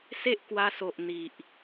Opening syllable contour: high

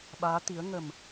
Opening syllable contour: rising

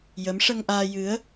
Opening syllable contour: rising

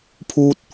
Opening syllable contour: high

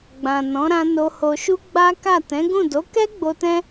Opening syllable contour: low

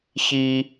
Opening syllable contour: high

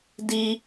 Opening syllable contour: low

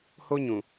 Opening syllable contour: high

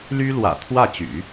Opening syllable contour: high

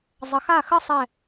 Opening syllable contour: low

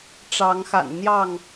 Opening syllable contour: rising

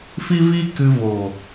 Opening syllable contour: high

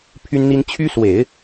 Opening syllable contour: high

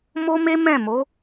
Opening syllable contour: high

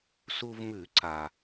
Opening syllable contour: low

